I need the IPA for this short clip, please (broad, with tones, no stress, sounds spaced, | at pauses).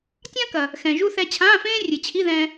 tʲ ã˥ k ɐ˩ | x ɛ̃˩ ʒ u˧ θ ɛ˧ t͡ɕʰ ãː˧˥˧ f ẽː˥ rʲ ɨ˩ t͡ɕʰ i˧˥˧ ð ɛ̃ː˧